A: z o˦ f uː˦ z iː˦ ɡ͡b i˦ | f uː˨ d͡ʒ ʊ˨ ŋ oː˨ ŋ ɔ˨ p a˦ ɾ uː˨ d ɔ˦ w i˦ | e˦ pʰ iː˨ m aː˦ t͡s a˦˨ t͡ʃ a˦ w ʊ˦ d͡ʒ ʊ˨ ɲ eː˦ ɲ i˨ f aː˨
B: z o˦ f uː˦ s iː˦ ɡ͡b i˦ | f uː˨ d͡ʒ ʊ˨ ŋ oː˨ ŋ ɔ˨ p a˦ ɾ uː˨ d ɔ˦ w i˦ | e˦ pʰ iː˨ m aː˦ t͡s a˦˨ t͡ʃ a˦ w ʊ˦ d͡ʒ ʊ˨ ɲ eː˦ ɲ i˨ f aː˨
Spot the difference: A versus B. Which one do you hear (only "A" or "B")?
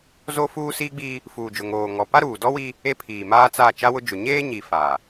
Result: B